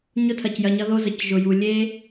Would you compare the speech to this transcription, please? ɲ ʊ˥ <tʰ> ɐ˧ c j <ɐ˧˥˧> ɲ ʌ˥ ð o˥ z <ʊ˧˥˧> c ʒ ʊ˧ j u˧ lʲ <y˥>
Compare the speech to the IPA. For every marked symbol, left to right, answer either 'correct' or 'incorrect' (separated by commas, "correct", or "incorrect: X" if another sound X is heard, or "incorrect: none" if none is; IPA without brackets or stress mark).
correct, correct, incorrect: ə˧˥˧, incorrect: e˥